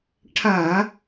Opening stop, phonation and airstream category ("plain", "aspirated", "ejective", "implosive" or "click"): aspirated